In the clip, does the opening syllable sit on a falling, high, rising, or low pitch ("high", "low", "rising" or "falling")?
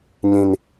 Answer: high